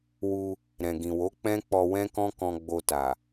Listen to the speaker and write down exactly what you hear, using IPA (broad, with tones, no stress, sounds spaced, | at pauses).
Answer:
w u˧ | ɾ ɛ̃˨ ɡ ĩ˨ w o˨˦ k͡p ɛ̃˦ k͡p ɔ˧ w ɛ̃˦ k ɔ̃˦ k ɔ̃˧ ɡ͡b o˧ t a˨